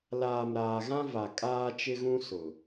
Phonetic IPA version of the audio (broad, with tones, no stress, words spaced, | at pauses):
laː˨mɾaː˨ɣã˦ va˨ kʼaː˦t͡ʃɪ˦ɣũ˦ sʊ˨